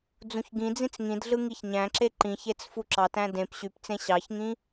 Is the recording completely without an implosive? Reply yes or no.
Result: yes